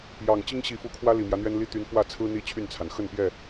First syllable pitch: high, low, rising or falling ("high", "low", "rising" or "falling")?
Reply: low